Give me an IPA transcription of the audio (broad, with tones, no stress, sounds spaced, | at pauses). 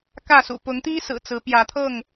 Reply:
k ä˥˨ s ṵ˨˩ p ʊ˨˦ ŋ t̪ i˦ s ɹ̩˨˩ t͡s ɹ̩˨˦ p j ä˨˦ t̪ʰ ɤ˥˨ ŋ